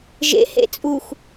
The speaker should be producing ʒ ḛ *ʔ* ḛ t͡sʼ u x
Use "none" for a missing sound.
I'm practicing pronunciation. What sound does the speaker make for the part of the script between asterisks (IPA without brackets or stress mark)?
h